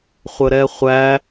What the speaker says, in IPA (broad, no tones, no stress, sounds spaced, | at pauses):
χʷ ə ɾ ɛ χʷ æ